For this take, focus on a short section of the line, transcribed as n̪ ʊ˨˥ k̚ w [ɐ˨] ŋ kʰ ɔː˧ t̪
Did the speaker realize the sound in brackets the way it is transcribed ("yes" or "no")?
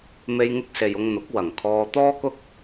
no